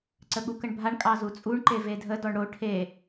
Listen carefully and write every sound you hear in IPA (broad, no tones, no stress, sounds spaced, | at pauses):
ǀ ə ɠ u k ə ɳ bʱ a ɳ kʼ ɑ z u t͡sʼ u ɳ ǃ e v e dʱ ə d ɔ ɳ ɽ o ʈʰ e